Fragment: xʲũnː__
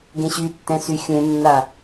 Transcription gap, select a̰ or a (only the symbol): a